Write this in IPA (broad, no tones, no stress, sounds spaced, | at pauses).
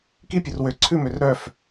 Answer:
k i pʲ ɵ r w ø ǀʰ ʉ m ø r ɾ œ f